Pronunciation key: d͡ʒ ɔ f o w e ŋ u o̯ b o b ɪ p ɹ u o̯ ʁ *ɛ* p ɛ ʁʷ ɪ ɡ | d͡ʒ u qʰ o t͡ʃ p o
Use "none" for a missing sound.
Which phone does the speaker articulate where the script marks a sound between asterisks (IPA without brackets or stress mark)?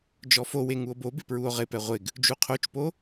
ɪ